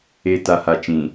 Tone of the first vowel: low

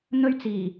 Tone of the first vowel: high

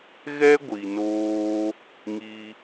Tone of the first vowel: high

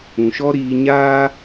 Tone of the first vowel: low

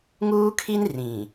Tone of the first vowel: high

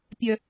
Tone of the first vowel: low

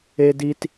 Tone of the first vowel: high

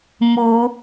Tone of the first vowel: rising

